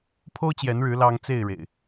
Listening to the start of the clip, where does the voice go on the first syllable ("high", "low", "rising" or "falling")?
high